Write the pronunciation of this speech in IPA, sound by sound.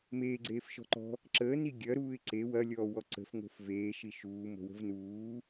m eː ɡ͡ǀ eː f ʃ ɔ̤ ǃ ɔ̤ | ǁ əː n i ɡʲ ɐ ɾ uː ɪ̯ ǀ e w ɐ lʲ ɔː w ɔ ǀ ə̤ f ŋ o̤ f v eː ʃ i ʃ uː m o̤ w ə̤ v n uː

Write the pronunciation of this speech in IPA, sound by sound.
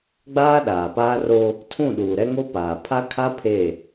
ɡ͡b aː˦ ɗ aː˨ p aː˦ r o˦ | tʰ ũ˦˨ ɗ uː˨ ɾ ɛ˦ ŋ o˦ p aː˨ pʰ a˦ kʰ a˦ pʰ e˦˨

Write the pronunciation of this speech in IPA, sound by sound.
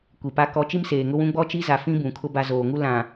kʷ i˨ p a˦ k ɔ˨ t͡ʃ i˦ m s eː˨ ŋ ʊ˦ w ũ˦ ɡ͡b ɔ˦ t͡ʃ i˦ z a˨ f ĩ˦ b ũ˨ kʰ ʊ˦ b a˦ z oː˨ ŋ u˦ l ã˨

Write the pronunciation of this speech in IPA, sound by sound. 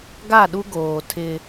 ɡ a˦˨ ɗ u˦ ɡ oː˨ tʰ ɪ˦

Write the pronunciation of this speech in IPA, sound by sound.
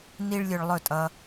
n i˦ ɭ lʲ ɵ˧ ɭ lˠ ɵ˦˨ tʼ ʌ˧

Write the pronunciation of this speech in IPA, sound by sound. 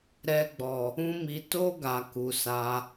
ɾ ɛ˧ ɡ͡b ɔ˨ | ũ˦ m i˧ t o˦ ɡ a˧ k u˨ s a˨˦

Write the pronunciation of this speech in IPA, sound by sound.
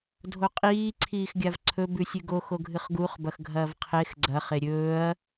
dʱ o qʼ iː ǀʰ iː x ɡʲ a v ǀʰ ɵ b ʉ sʲ ʉ ɡ o x o ɡʱ ɨ χ ɡ u χ b ɐ x ɡʱ ɐː v qʰ e x ɡ͡ǀ ɐ χ e ɾʲ ɵː ɐ̯

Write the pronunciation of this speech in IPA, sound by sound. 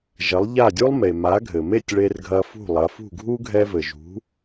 ʒ ɐ˩˥ lˠ ʎ a˥˩ dʲ u˥ lˠ m e˩ m a˩˥ ɡʱ ɘ˩ m e˥˩ tʲ ɭ e˧ r ɡʱ ɐ˧ f ṳ˥˩ lˠ ɐ˩˥ f ṳ˥˩ ɡʱ u˥ ɡʱ ɛ˧ v ɘ˩ ʒ ṳ˩˥

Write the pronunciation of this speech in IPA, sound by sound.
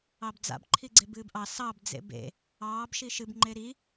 ɑ b d͡z a̰ b ǃʰ i ɡ͡ǀ e b ɨː b ʔ ɑ s ɑ b d͡z ḛ b ḛ | ɑː b ʃ i ʃ ɨ b ŋ͡ǃ e ɾ i

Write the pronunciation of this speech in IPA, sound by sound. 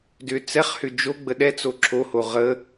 d ʏ t͡s ɛ χ h ʏ d͡ʒ o ɡ͡b ə ɗ ɛ t͡s o ǁʰ o h o ʁ ə

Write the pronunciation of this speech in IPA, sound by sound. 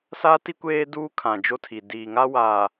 s a˦ t i˦ kʷ eː˦ d uː˦ kʰ ã˨ d͡ʒ o˦ tʰ i˨ d iː˨ ŋ a˦ w a˨

